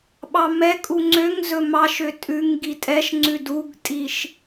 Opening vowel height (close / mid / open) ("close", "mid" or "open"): open